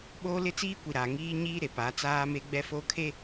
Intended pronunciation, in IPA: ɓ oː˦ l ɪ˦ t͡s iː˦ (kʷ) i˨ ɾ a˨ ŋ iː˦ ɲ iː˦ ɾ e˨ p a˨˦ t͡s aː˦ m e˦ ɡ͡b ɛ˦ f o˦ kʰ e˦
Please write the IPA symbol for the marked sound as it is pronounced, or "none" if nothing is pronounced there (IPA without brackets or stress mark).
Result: kʷ